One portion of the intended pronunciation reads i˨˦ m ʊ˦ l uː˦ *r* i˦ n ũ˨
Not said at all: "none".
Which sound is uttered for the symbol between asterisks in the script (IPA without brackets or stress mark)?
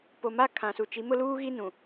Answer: ɣ